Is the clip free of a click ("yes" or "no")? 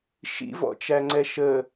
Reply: no